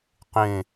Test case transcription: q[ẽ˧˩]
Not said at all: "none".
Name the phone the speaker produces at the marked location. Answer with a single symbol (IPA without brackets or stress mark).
ẽ˧˩